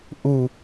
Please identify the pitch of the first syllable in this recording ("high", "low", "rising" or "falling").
low